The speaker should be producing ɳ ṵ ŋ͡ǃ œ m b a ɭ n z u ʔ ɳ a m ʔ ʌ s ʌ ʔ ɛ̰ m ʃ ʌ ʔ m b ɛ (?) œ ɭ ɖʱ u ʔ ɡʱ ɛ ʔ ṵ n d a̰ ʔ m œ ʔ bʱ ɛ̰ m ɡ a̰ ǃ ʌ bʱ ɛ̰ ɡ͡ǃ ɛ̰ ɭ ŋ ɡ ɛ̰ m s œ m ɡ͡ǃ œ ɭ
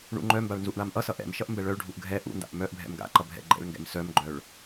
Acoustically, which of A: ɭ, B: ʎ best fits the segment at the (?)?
A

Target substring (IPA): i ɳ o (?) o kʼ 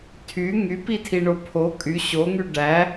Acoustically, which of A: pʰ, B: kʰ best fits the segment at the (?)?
A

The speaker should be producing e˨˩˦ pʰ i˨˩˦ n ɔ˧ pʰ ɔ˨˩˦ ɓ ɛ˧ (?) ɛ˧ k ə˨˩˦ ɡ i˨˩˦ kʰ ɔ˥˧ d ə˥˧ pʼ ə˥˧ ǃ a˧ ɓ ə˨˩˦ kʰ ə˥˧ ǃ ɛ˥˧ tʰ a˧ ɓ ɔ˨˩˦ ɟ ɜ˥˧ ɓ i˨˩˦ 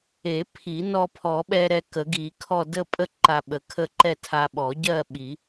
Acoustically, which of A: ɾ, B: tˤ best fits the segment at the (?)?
A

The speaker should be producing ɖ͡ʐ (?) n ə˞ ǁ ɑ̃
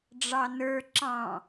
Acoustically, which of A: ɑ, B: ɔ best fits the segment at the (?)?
A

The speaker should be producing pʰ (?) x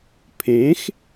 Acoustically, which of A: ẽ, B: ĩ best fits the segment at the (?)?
A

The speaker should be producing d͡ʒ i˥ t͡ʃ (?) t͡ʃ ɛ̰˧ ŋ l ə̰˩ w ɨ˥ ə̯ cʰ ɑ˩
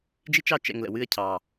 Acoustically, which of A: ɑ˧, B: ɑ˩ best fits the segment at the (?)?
A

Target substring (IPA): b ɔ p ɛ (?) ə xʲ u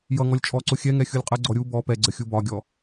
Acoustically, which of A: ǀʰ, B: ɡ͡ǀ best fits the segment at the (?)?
B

